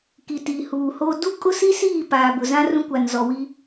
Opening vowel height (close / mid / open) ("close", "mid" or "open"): close